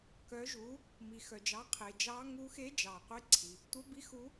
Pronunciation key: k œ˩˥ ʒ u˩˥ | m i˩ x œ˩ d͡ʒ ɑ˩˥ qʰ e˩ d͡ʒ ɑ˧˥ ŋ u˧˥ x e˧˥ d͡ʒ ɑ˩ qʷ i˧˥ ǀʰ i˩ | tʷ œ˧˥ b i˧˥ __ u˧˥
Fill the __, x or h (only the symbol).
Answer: x